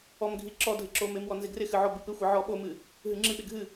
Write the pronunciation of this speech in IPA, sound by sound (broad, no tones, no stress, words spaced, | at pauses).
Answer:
ɔmɡʱi ǁɔ dʱɪǁomɪmwɔ nzɪɡrɪxɨ ʕɔbɨpɪxʷi ʕɔɓomɨ | ɦɨŋ͡ǁɨɓɪ ɡʱɨ